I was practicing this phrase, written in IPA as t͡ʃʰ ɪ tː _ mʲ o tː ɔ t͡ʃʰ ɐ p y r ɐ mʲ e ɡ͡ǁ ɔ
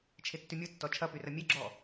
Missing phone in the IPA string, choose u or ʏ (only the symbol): ʏ